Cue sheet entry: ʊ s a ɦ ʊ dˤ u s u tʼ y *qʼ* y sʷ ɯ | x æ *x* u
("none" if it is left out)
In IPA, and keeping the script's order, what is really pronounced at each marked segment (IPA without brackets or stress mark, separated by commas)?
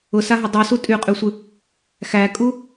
qʼ, kʼ